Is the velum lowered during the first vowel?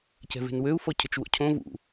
no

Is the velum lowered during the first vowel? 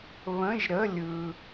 yes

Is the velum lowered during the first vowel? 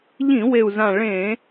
yes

